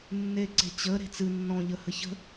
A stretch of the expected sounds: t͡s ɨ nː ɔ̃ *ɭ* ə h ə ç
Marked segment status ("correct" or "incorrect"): incorrect